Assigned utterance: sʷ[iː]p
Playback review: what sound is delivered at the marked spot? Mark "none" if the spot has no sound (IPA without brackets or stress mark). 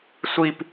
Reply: i